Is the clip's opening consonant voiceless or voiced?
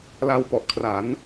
voiced